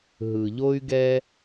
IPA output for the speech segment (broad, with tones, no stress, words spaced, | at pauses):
ɦɯ˩ʎo˥y̯ɡɛ˥